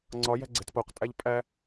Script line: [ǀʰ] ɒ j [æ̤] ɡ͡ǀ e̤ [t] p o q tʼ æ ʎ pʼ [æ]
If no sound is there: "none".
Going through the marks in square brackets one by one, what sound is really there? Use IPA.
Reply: ŋ͡ǀ, æ̤, t, æ

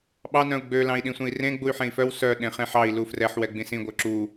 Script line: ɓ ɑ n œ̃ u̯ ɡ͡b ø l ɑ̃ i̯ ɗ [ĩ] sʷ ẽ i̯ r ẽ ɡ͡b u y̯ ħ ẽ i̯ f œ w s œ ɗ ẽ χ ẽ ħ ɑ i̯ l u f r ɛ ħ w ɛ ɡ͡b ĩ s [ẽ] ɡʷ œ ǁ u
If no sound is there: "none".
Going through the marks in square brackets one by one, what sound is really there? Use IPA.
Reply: ĩ, ĩ

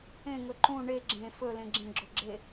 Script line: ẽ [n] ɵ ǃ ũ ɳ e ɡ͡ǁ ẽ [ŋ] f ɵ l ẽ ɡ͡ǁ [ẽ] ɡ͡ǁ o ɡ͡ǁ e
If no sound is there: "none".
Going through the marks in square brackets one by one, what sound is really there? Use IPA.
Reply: ŋ, none, ẽ

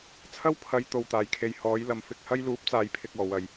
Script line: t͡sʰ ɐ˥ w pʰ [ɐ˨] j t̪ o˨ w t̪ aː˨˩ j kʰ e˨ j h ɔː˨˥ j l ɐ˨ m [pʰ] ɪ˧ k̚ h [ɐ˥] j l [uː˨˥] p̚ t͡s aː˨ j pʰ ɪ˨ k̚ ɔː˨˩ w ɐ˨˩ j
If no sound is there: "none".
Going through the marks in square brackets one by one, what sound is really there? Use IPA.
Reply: ɐ˨˧, f, ɐ˥, uː˨˥

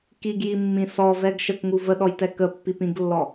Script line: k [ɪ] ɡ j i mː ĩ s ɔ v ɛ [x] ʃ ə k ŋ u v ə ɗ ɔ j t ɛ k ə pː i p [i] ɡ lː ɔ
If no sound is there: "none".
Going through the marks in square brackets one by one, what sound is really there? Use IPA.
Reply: i, ɡ, ĩ

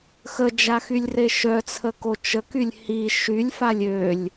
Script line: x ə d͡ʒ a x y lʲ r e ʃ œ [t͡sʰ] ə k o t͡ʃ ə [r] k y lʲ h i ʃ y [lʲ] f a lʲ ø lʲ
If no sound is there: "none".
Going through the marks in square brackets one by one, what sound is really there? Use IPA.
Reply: t͡sʰ, none, lʲ

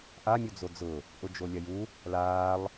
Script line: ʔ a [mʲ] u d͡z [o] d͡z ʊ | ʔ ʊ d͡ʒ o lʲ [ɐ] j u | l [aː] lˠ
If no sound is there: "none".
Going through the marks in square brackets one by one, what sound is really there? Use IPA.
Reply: mʲ, o, ɐ, aː

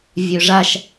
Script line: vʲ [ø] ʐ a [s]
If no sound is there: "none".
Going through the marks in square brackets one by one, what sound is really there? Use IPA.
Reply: ø, ʃ

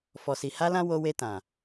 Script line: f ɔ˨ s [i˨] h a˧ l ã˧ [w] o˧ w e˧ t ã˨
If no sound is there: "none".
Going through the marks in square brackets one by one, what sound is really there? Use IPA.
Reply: i˨, w

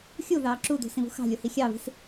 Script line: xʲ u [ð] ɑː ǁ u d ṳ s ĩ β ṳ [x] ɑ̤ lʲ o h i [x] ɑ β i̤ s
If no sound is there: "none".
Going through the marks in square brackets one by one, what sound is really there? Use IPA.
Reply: ð, x, xʲ

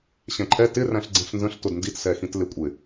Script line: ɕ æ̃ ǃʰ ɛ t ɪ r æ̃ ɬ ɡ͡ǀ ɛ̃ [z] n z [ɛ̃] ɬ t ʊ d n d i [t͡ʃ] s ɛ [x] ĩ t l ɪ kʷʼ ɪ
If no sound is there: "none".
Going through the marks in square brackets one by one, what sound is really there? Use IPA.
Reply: ɬ, ə̃, t, x

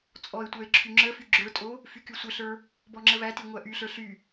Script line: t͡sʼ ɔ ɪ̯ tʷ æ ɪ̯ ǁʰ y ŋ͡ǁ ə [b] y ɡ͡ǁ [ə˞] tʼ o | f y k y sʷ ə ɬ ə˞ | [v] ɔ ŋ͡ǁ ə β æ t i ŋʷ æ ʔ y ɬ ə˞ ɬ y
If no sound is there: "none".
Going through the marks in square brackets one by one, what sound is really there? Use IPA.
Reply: f, ə˞, b

